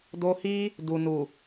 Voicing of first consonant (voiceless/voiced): voiced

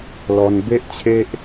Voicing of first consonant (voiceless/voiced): voiced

